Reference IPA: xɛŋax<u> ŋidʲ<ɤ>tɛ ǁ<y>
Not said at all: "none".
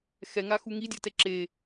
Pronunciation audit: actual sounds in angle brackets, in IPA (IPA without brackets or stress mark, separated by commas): u, ɤ, e